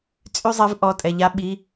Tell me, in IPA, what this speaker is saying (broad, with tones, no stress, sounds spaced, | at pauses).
t͡sʼ y˥˨ zˤ ɛ˨˥ v ʔ ɔ˩˧˩ tʼ ɛ˩ ʎ a˨˥ ɓ i˩˧˩